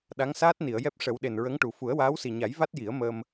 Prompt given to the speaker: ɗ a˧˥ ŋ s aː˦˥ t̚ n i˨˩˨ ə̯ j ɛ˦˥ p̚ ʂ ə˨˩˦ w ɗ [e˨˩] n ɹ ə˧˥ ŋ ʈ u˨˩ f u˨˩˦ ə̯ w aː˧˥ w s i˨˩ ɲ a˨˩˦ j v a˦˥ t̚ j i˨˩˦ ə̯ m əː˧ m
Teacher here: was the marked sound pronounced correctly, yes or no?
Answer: yes